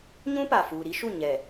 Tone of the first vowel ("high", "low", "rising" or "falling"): high